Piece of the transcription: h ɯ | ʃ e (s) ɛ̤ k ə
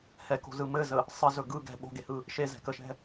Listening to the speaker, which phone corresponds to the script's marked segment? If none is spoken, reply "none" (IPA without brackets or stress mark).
z